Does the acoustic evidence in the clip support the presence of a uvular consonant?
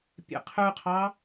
yes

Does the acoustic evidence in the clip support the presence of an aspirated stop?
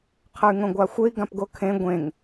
yes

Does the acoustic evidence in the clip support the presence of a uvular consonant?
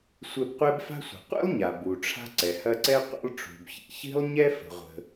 yes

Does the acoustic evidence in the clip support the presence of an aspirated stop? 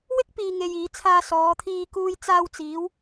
yes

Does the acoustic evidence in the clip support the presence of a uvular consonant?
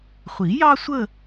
yes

